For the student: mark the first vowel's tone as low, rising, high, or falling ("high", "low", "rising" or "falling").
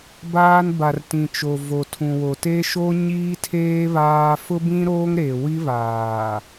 high